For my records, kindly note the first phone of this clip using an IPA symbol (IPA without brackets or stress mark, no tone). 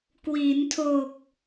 k